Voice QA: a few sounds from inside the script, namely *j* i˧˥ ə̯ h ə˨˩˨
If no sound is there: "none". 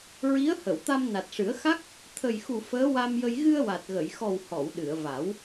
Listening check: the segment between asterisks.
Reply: ɹ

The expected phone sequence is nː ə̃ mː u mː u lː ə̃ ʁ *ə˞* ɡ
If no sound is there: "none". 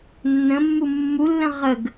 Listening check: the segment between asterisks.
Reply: ə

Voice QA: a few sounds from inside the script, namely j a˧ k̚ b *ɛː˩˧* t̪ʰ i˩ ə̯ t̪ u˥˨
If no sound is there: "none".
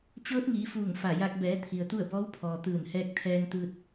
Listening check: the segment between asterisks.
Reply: ɛː˩˧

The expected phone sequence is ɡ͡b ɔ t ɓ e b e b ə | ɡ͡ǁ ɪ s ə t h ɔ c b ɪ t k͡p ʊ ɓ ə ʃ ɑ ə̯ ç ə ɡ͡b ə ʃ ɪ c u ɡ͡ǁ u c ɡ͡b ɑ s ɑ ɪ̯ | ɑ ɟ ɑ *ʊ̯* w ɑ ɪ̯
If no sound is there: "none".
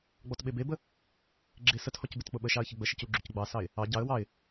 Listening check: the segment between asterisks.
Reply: ə̯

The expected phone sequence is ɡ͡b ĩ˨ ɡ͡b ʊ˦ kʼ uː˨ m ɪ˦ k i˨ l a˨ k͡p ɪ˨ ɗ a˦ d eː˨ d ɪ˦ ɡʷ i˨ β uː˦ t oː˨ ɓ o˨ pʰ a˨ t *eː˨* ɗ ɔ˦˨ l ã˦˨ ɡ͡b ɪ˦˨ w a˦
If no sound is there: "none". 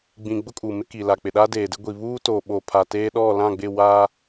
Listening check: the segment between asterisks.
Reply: eː˦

